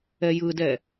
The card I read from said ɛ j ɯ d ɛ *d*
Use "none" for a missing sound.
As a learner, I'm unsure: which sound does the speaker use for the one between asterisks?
none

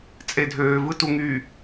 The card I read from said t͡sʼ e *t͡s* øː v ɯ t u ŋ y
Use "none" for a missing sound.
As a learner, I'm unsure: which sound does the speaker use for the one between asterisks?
dʱ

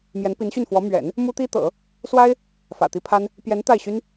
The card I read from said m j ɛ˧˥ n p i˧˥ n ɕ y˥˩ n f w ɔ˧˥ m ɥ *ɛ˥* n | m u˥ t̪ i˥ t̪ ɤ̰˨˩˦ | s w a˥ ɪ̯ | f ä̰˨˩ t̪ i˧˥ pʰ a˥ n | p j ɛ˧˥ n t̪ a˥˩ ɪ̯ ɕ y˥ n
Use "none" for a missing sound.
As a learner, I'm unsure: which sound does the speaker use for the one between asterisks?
ɛ̰˨˩˦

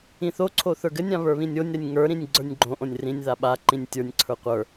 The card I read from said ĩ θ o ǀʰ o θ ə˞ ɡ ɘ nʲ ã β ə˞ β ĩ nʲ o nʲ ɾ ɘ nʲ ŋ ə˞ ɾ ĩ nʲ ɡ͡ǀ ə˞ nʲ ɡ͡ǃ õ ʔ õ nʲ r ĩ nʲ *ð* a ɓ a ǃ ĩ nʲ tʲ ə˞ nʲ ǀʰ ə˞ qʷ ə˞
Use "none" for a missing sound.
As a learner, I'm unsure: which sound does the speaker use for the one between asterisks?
ð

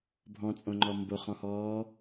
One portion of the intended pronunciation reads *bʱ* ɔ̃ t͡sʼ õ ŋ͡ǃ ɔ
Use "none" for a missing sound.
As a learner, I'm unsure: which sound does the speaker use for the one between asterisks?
bʱ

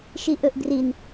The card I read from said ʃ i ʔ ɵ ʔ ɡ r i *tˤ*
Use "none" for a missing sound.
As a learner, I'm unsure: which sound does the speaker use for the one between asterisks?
n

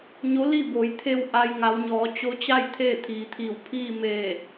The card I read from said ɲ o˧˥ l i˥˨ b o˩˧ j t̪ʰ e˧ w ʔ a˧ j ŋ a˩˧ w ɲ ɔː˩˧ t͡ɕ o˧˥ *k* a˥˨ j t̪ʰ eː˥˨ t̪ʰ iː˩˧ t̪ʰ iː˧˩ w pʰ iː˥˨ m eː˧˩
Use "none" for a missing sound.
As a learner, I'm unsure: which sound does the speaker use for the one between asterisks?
t͡ɕ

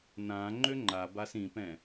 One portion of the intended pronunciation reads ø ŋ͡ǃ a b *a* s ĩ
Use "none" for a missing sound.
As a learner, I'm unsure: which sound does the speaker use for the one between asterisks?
a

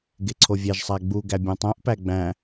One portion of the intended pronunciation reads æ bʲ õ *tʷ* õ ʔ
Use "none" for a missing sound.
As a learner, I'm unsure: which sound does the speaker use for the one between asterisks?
tˤ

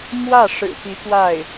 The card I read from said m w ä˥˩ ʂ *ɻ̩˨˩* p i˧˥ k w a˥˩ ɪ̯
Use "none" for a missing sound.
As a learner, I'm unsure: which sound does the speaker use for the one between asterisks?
ɻ̩˨˩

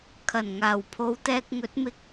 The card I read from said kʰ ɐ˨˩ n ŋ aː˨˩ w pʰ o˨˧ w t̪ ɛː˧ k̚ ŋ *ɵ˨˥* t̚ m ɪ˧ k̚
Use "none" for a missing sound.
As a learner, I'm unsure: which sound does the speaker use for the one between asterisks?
ɵ˨˥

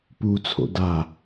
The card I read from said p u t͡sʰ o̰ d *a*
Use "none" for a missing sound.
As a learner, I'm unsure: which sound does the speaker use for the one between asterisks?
a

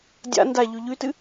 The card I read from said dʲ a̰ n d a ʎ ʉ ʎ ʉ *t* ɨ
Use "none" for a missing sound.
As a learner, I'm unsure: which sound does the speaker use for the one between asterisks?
t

